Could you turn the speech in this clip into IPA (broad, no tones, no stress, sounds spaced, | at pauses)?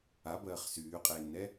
a b ɜː χ s yː qʼ eː nː ɛ